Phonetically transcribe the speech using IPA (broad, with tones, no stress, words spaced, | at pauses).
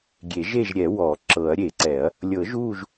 ɡʲe˨˩˦ʒeː˦˨ʒɾʲɛ˨˩˦ wɔ˨˩˦ ǁɤ˨˩˦ɐ̯ɾʲe˨˩˦ǀɛ˨˩˦ɐ̯ | lʲɤ˨˩˦ʒuː˦˨ʒ